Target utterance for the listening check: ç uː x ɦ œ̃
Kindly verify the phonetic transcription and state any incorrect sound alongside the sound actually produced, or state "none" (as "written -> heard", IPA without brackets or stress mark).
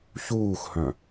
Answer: ɦ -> h